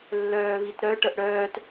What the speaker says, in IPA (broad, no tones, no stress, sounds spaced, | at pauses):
lː œː β i t ɾ œ ʈ ə ʔ ɽ œː t